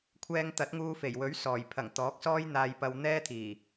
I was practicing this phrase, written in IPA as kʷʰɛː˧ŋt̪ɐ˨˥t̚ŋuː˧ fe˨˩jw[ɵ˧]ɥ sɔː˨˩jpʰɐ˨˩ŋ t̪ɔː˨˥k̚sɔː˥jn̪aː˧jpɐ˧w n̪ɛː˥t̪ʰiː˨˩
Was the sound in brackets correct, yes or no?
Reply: no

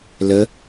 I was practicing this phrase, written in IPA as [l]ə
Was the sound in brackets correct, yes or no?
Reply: yes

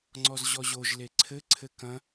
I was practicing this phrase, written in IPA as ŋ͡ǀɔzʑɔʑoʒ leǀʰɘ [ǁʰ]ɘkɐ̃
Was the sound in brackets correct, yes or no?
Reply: no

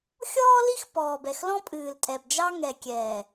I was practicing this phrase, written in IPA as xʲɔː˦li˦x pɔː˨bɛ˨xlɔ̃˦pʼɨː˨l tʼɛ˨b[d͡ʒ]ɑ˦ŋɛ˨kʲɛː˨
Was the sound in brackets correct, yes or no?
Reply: yes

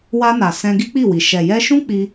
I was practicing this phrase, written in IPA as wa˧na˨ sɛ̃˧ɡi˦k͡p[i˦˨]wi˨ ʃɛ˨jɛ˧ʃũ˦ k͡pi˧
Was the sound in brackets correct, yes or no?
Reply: yes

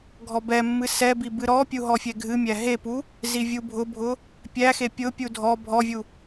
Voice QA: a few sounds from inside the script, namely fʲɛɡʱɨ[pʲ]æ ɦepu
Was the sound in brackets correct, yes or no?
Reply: no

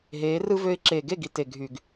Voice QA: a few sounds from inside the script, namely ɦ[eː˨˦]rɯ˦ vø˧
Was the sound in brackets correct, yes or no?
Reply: yes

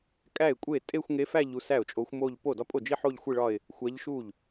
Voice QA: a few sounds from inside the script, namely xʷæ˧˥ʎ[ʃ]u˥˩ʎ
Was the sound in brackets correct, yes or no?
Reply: yes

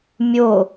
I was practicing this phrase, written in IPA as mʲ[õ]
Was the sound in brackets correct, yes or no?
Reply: no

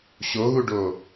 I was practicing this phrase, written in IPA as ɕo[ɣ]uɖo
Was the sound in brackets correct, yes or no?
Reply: yes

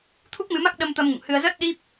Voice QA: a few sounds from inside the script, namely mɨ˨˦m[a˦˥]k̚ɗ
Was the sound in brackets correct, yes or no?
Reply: yes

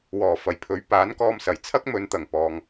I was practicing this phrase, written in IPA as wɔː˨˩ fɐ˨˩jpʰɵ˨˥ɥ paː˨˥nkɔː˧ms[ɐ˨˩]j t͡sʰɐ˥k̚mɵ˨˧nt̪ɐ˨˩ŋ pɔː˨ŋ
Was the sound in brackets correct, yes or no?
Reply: yes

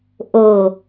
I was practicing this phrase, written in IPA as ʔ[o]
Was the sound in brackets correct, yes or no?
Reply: yes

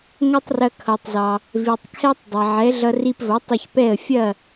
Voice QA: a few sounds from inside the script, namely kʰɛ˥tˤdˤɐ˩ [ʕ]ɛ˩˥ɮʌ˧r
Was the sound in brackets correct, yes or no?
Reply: yes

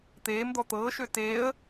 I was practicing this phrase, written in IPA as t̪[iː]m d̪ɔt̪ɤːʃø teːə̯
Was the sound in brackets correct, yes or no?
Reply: no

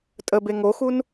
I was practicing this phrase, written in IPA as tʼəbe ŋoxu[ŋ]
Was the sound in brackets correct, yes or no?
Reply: no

